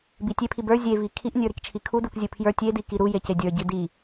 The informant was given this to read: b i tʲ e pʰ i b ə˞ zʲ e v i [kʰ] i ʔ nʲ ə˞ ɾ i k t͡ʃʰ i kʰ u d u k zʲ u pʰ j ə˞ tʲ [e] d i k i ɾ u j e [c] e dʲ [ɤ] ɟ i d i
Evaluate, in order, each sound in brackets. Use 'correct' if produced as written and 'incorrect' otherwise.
correct, correct, correct, incorrect

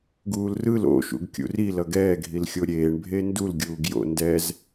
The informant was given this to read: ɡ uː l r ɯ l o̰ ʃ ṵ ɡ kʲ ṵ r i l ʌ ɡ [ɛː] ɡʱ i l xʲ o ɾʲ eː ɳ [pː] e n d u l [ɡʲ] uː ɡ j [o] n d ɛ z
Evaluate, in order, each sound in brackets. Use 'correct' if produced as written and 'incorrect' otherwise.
correct, incorrect, correct, incorrect

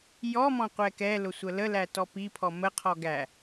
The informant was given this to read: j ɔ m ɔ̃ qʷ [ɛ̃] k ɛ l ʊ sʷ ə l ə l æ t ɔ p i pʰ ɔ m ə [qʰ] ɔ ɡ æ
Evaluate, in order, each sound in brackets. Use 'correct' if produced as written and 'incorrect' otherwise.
incorrect, correct

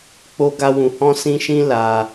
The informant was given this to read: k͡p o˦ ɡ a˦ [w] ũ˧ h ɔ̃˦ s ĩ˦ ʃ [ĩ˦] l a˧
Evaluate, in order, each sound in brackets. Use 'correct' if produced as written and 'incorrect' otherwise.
correct, correct

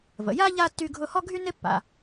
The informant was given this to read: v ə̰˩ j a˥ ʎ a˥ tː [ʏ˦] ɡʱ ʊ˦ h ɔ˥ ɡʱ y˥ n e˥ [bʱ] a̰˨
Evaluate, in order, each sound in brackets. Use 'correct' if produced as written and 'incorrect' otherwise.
incorrect, incorrect

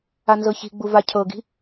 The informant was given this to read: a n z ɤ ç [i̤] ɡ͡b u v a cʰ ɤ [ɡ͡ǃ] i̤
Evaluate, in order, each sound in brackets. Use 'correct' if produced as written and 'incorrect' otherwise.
correct, incorrect

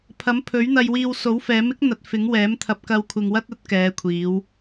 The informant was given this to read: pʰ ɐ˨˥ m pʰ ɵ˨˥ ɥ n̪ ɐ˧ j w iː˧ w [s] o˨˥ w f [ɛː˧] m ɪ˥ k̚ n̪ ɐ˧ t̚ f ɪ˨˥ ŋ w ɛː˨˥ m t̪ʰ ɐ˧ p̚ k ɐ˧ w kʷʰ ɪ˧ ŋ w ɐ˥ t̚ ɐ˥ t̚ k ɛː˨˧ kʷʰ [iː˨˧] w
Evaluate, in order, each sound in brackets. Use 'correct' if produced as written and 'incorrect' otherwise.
correct, incorrect, correct

